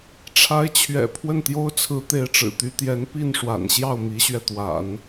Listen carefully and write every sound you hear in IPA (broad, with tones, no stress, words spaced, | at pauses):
ʈ͡ʂʰa˧˥ɪ̯t͡ɕʰɥɛ̰˨˩ pʰwə˥˩nt̪jo˥ʊ̯t͡sʰɹ̩˧˥ t̪e˧˥ɪ̯ʈ͡ʂɻ̩˨˩t̪y˧˥t̪jɛ˧˥n pi˥˩nʂwa̰˨˩nɕjɑ˥˩ʊ̯ mi˧˥ɕɥɛ˧t̪wa̰˨˩˦n